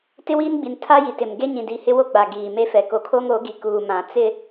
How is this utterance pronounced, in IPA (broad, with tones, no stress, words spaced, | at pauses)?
tɪ˦wiː˦nɡ͡bi˨n tʰa˦ji˨tɪ˨m ɡe˦ɲĩ˨ di˨hɪ˦ wo˦ɡ͡ba˨ ɡiː˨me˦fɛ˨ ko˨kʰo˦ŋo˨˦ ɡi˨kuː˨ mã˨ t͡sɪ˦